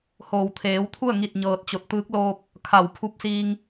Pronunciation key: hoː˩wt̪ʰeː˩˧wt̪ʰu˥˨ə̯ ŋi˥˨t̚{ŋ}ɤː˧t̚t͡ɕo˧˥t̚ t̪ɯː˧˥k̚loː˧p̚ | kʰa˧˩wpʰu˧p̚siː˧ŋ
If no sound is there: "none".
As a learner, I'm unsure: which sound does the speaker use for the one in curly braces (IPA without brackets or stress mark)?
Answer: ɲ